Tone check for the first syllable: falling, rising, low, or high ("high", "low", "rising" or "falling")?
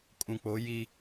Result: low